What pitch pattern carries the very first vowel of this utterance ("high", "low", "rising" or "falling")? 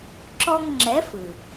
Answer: high